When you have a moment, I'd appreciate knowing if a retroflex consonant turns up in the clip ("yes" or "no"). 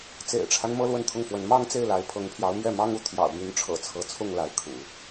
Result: yes